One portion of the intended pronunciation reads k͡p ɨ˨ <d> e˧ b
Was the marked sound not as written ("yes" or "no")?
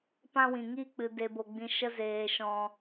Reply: no